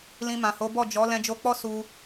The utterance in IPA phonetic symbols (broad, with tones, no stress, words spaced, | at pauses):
lĩ˧mã˨ho˨˦bɔ˦˨ d͡ʒɔ˨˦ lɛ̃˧d͡ʒo˧k͡pɔ˦ su˧